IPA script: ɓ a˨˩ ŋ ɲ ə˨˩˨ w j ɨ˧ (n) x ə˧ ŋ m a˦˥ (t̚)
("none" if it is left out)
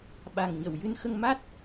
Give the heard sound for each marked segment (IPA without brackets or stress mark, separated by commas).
n, t̚